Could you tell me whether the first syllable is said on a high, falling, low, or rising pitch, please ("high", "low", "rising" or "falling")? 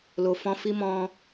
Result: low